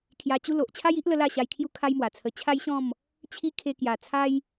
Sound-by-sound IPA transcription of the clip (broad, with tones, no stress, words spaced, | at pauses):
kʰja˧t͡ɕu˦ lo˨ʔ t͡ɕʰa˦ji˦ʔlə˧ la˥˧ɕa˧jkʰju˦ kʰa˦jmwa˨˩t͡sʰə˧ t͡ɕʰa˦jɕɔ̃˥˧m | t͡ɕʰi˦ kʰe˧kja˨˩ t͡sʰa˦j